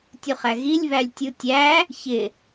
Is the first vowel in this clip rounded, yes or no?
yes